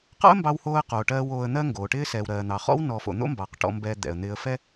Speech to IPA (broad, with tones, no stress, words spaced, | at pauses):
qɑ̰˥ə̯mbɑ˧whoː˧ə̯qoː˩ ʈɜː˧w oː˧ə̯n̪ɜ˥ŋɡoː˩ʈɪː˥ sɛː˩wɾɜː˩n̪ɑ˩χɔ̰˥w nɔ˧ fo̰˩ n̪o̰˥mbɑ˩q ʈɔ̰˧mbɛ˧ d̪ɛ̰˩ə̯n̪ɪː˧ə̯fɛ˥